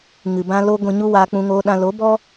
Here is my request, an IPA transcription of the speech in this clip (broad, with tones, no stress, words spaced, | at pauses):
ŋɨ˨bã˧ lo˧ ɡʷĩ˨ ɲu˦waː˧ k͡pũ˧ŋoː˧ɗã˧ lo˨˦bɔ˦